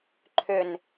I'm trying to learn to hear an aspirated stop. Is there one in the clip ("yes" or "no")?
yes